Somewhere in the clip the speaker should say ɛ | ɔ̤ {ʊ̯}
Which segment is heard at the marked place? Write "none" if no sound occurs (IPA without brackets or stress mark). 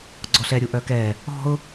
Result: ʊ̯